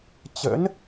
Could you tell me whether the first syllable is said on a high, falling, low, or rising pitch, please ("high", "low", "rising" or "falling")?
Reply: rising